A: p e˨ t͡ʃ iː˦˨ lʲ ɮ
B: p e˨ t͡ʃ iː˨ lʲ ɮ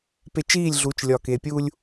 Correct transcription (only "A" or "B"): A